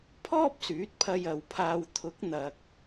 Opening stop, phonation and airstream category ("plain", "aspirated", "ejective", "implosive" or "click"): aspirated